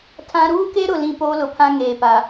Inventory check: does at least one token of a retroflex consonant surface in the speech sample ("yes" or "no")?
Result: no